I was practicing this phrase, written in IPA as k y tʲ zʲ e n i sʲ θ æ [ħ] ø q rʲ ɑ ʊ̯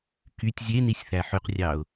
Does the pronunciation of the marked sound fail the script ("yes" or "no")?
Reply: no